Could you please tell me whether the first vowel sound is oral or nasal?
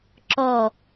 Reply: oral